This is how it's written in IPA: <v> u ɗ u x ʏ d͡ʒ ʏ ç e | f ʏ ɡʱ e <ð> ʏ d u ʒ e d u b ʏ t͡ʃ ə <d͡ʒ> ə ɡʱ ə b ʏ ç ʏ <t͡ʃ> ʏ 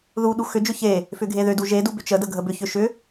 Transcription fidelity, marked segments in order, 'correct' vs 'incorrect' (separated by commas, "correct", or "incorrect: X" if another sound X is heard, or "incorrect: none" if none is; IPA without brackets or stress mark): incorrect: ð, correct, incorrect: d, incorrect: ʃ